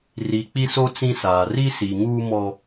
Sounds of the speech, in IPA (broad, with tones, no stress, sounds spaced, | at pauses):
r i˨ k͡p i˦ s o˦ t͡s ĩ˦ s aː˨ r i˦ s i˨ ŋ uː˦ m ɔ˦